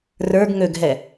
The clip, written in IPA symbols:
rə˞ɡ ŋøɡɦɛ

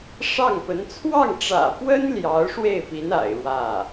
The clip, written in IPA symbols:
ʂɑ˥˩ŋpə˧˥n t͡sʰwɑ˥˩ŋʈ͡ʂä̰˨˩pwə˥n ljɑ˧˥ʊ̯ʂwe˥˩ɪ̯pi˧˥n a̰˨˩ɪ̯ɻwä˥˩

